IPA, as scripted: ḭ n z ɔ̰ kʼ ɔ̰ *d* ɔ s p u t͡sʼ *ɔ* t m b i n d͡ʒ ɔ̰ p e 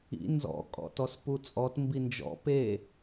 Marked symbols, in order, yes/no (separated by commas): no, yes